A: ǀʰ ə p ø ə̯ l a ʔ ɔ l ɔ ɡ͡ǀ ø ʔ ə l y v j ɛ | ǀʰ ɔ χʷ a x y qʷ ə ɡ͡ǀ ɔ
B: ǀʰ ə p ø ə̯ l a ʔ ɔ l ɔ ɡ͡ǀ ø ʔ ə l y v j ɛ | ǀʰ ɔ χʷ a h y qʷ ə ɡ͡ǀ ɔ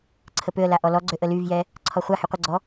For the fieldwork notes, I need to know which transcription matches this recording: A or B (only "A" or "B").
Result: B